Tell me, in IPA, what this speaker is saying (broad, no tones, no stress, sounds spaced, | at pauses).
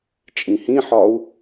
t͡ʃʼ ĩ h ĩ ħ ɒ u̯